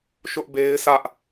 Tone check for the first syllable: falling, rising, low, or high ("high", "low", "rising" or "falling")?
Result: high